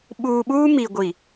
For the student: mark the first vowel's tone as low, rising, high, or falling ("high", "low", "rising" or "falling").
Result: low